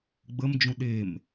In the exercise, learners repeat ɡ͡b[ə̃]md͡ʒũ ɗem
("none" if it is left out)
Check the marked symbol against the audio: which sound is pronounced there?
ə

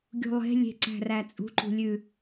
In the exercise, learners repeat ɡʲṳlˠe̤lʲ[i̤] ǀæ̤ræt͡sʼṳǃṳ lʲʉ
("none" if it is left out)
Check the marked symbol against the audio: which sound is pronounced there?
e̤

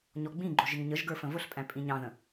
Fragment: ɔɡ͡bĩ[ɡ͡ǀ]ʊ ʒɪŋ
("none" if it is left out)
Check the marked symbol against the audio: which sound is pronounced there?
ɡ͡ǃ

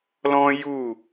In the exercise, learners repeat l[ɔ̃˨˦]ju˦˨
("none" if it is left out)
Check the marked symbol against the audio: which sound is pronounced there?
ɔ̃˦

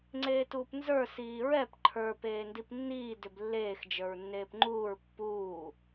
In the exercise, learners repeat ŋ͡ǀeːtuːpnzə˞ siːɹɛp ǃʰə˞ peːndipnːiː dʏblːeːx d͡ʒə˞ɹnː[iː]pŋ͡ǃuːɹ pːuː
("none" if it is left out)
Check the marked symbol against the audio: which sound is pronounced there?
eː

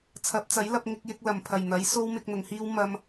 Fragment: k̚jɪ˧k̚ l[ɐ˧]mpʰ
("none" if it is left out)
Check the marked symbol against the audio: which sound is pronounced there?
ɐ˨˩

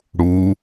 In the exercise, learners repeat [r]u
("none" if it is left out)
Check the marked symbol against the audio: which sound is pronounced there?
ɽ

